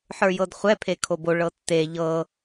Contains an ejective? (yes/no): no